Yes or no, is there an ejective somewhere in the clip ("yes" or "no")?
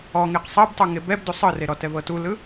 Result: no